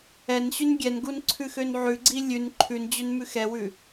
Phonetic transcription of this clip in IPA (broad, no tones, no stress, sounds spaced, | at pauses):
ɛ n ɕ ʉ n ɡʲ ɛ n ɡ u n ǀʰ ʉ x ø n ʕ ʉ ɡ͡ǀ i lʲ ʉ n ǃʰ ʉ n d͡ʑ ø n m ʉ x ɛ w ʉ